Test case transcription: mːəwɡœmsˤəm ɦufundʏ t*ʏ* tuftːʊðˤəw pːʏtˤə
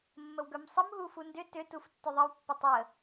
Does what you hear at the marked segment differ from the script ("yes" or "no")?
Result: no